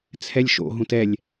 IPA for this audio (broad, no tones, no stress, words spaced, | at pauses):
t͡sʰɛlʲʃo̰ɦũt ɛlʲ